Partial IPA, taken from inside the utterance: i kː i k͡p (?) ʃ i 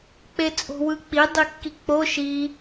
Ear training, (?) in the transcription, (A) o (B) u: A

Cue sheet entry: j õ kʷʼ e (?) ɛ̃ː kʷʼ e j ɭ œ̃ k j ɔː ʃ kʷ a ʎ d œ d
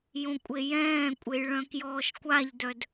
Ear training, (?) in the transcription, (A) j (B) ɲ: A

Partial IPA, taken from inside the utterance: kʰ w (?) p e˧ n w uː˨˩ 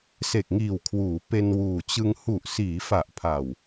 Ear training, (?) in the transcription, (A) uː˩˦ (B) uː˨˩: A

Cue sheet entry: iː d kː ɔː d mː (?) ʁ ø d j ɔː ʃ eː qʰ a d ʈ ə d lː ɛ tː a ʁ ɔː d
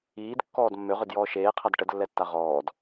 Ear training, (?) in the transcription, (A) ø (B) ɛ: A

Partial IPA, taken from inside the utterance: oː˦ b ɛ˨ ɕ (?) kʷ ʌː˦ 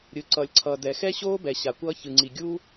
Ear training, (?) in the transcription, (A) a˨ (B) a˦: A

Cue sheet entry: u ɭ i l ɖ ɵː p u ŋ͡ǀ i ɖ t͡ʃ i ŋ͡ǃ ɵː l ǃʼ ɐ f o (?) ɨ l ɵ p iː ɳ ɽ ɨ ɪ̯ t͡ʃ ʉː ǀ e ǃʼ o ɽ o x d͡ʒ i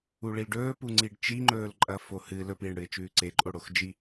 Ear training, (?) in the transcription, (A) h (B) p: A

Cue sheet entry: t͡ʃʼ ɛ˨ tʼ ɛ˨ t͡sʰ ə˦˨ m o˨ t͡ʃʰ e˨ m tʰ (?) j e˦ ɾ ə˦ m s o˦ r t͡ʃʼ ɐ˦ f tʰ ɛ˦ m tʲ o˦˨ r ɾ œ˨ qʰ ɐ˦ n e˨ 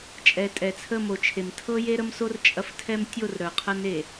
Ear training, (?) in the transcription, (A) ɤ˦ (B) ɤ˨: A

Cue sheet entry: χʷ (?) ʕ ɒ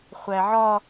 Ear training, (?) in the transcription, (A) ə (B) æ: B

